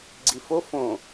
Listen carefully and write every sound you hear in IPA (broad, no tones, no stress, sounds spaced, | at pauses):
ɡ͡ǀ i f o f õ